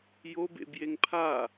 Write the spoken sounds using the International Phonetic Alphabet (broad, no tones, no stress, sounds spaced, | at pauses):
j o b ḛ b j e ŋ pʰ a